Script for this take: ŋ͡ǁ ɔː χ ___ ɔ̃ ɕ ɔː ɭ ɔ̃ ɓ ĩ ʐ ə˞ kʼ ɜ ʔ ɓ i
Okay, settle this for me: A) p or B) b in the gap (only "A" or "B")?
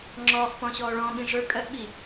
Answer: A